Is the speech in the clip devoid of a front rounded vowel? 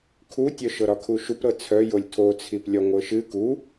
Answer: no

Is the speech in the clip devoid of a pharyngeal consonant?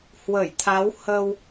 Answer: yes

